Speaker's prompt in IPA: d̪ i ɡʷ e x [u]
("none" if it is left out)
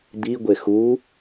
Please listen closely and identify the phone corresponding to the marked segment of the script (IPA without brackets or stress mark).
u